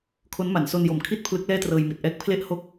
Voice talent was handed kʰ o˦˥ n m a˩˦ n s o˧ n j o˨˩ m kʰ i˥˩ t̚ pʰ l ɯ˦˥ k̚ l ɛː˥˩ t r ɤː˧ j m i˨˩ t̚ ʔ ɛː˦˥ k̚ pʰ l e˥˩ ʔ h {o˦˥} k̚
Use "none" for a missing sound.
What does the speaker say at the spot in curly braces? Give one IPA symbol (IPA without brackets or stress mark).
o˥˩